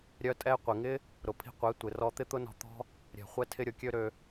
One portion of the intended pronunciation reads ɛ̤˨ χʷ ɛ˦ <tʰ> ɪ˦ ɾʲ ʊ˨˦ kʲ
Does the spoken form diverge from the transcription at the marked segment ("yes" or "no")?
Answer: no